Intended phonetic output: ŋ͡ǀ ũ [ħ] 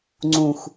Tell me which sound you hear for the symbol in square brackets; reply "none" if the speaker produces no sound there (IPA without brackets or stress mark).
x